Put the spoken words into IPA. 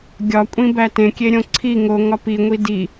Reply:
ɡʲɒ kʷʼĩbætẽ kʲeɾʲõǀʰi ŋoŋɒ piŋʷi di

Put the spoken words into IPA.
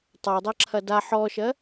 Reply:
tˤadˤɜǁʰɐ da ħɔʃɜ

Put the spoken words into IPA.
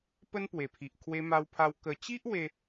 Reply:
pə˦npwe˨˩pʰi˨ʔ kʰwe˧ma˧wpʰa˧w kə˨˩t͡ɕi˦ʔ we˦

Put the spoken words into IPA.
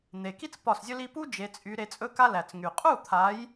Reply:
n̪e˨˩ki˥t͡s pɒ˥˩szʲɵ˥li˥ pu˥d͡ʒe˨˦t͡sʼy˨˦ ɾe˨˦ t͡sʼɵ˥ka˥læ˨˩t͡sŋy˨˩ qʼu˥˩t̪ʰa˨˦j

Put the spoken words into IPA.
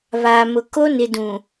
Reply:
βaː˨ mʊ˨ ko˦ nɪ˨dũ˨

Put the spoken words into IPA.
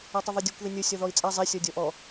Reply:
atˤəðˤødʲukʷ ðinʲo sʲɔðɔi̯t͡sʼa zˤe sʲɔdʲɔʔɔ

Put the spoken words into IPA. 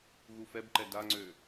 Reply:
ɣufɛbǃɛ daŋ͡ǀø

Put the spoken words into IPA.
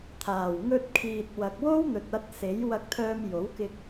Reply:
t̪ʰaː˨˩w ŋɵ˧t̚kʰiː˨t̚ wɐ˨k̚wo˥wn̪ɵ˨t̚ɐ˧t̚ se˨˥j wɐ˧k̚t̪ʰœː˧m jo˨˥wkɪ˧k̚

